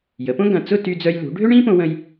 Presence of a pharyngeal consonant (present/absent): absent